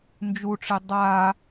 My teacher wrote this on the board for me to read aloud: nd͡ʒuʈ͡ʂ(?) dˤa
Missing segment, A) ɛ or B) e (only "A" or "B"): B